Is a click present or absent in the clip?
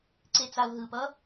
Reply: present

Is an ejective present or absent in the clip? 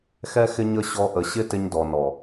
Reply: absent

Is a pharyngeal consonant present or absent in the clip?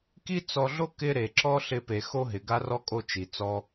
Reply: absent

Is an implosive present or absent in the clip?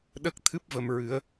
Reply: present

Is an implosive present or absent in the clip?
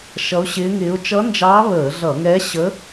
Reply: absent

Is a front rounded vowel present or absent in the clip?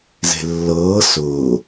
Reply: absent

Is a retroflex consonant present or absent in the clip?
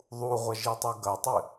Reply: absent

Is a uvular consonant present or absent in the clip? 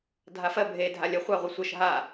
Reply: present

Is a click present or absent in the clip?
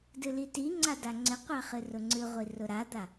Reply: present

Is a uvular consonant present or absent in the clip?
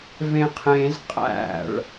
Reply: present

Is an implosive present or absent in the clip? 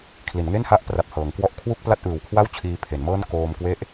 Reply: absent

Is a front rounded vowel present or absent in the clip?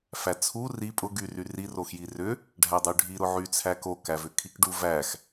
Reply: present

